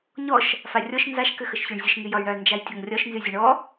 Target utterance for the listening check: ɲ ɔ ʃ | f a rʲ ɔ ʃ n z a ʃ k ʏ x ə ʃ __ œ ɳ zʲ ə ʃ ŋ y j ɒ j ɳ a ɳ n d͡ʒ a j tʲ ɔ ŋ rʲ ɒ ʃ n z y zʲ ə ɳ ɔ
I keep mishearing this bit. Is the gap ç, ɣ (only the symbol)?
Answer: ç